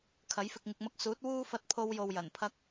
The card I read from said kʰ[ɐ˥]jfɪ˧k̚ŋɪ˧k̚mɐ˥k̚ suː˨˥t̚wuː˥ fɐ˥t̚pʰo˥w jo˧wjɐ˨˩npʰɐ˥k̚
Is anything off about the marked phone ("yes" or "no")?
yes